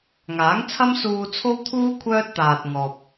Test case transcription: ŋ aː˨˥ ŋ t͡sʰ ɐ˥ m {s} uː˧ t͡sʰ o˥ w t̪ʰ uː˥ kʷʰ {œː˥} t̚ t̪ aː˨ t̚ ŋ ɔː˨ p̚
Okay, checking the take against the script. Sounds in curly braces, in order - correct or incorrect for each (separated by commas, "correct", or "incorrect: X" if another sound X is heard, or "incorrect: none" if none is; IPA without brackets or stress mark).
correct, correct